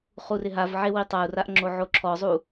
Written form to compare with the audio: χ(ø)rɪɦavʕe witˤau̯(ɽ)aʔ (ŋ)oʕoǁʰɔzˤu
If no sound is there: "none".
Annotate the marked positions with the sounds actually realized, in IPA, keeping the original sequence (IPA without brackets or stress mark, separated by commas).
u, r, ŋ͡ǁ